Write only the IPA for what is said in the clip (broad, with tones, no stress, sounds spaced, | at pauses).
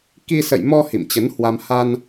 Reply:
k i˧ s ə̰˧˨ j m ɔ˧ h ḭ˧˨ m t͡ɕ ə˨˦ n h w a˧ m h a˧ n